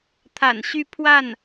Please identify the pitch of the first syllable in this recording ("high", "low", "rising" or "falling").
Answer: low